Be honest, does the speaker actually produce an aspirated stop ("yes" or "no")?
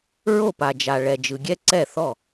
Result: no